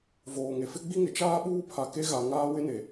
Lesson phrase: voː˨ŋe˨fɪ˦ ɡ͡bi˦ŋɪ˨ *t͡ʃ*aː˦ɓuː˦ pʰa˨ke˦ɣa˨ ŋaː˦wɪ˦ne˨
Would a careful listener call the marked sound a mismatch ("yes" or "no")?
no